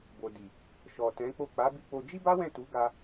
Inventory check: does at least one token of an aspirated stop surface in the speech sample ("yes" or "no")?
no